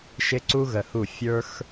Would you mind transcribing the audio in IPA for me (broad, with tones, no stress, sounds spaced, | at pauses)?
ʃ ɪ˦ ǀ u˦ ɣ ə˧ h u˦˨ fʲ ə˞˦ x